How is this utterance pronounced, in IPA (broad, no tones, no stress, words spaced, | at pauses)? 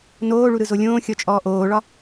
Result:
noːɭuɾɯzo lʲõːxʲɔt͡ʃʼɔː ʔoːɭɒ